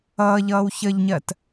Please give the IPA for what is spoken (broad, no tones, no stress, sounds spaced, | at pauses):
ʌː ʎ ʌː w ç ə ʎ ɲ ɜ t